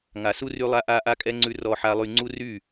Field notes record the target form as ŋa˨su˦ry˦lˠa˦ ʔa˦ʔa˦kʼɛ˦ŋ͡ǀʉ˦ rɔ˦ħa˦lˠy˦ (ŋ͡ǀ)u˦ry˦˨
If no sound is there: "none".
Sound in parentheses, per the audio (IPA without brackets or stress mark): ŋ͡ǀ